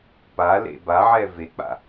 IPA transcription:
p a l ḛ b a ʕ ɛ v e k͡p a̰

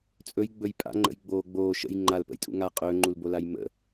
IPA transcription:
t͡sʼ ɵ j ɡ͡b ɵ j pʼ a̰ ŋ͡ǃ ə̰ j ɡ͡b oː ɡ͡b oː ʃ ə̰ j ŋ͡ǃ a l p ə̰ j tʼ ṵ ŋ a qʼ ɵː ŋ͡ǃ u l b o l a j m ə̰

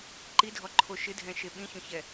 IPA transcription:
ǃ i dʱ ɔ ǃʰ o ʃ ɪ dʱ ɛ̃ ʃ e ɓ ĩ ç õ ç ɛ

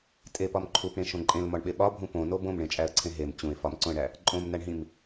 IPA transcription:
tʼ e p ɒ m ǃʰ u p ɽ ẽ ʃ õ ǃʼ ẽ l m ɒ ɳ ɓ e ɓ ɒ bʱ ũ p õ n o b õ m ɳ ẽ t͡ʃʼ æ ə̯ ǀʰ ẽ ɦ e m t͡ɕ ũ ɪ̯ f ɒ m ǀ õ ə̯ ɳ æ | ǃʼ õ m n æ ɳ ɦ ĩ m

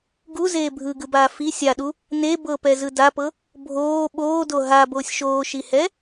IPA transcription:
ɡ u z eː bʱ ɯ ɡ ɯ b aː f i sʲ a ɗ u | n e b ɤ p ɛ z ɯ d a p ɤ | bʱ oː ɓ oː d o ɦ a b oː sʲ ʃ oː ʃ i h ɛ

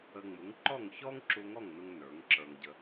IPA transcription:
ə˧ ŋ͡m u˩˥ ŋ ǃ ɔ˥˩ ŋ ç ɔ˥ ŋ ǁ u˧ ŋ ɔ˥˩ ŋ n u˥ ŋ n ə˞˩˥ ŋ ǁ ə˞˧ ŋ ɟ ə˧

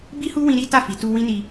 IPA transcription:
b i˦ h u˦ w ĩ˧ ɾ i˦ t a˦˨ f i˨˦ t u˦ w ĩ˦ n i˧

